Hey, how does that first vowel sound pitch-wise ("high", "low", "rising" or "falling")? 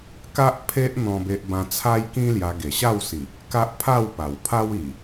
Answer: high